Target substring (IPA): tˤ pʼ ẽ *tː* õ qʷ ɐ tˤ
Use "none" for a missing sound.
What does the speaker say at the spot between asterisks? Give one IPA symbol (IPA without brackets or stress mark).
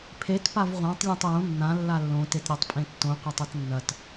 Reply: tː